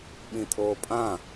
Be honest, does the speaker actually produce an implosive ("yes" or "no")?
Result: yes